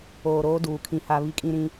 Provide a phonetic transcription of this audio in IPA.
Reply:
oː˨ɾoː˦ duː˨kʰĩ˦ha˦ βi˦kʼĩ˦ɾĩ˦

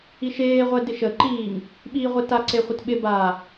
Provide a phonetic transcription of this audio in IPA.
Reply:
iʃeːʁʷɛ dɪʃəǃiːŋ | ɓiːʁʷetaǀe χʷətɓɪbaː

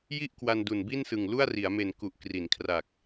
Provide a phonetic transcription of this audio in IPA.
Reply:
ji˦˥ʔ kwa˧ndu˨˩n bi˥˩nsɯ˨˩ŋ lu˥˩a̯ri˩˦a̯me˨˩n ku˨˩ʔkri˩˦nkʰra˨˩k̚

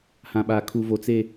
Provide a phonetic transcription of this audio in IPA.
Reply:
hã˦ɓaː˦kʰu˦vo˦ t͡se˦

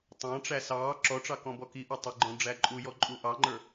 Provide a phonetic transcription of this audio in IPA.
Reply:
tˤɑ̃ʈ͡ʂæ sɑː ǁɔʈ͡ʂɑ kɔ̃bɔkiʔɔ tˤɪɡ͡ǃɔ̃ ɖ͡ʐæǃʼujɔ ǃʼuʔɑŋ͡ǃə˞

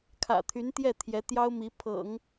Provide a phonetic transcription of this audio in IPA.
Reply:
kʰä̰˨˩t̪ʰy˧˥nt̪jɛ˥˩ t̪ʰjɛ˧˥t̪jɑ˥ʊ̯ mi˧˥ pʰɤ̰˨˩˦ŋ

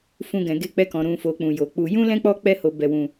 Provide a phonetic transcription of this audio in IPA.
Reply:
fũ˨ ɡɛ̃˨ɡe˧k͡pɛ˧kɔ̃˨ ɾũ˨fo˨k͡pũ˨ jo˨k͡pu˧ jũ˦lɛ̃˦k͡pɔ˦ k͡pɛ˦ho˧bɛ˧wũ˧

